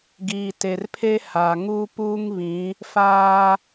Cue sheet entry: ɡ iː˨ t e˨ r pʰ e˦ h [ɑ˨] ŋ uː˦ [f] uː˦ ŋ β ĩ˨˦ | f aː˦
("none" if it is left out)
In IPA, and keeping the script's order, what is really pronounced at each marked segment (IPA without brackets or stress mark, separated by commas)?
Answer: a˨, p